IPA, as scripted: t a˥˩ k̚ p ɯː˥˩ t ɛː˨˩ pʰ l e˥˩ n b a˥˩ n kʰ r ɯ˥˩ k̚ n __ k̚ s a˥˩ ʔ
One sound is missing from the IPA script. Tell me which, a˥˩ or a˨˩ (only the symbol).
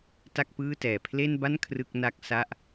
a˥˩